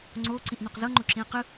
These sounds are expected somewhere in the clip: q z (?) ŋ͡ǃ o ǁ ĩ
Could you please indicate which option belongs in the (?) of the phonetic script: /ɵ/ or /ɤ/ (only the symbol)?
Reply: ɤ